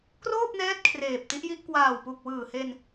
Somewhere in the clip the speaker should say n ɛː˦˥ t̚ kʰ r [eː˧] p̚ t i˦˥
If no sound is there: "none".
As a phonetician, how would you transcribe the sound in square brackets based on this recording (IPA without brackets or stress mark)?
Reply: eː˨˩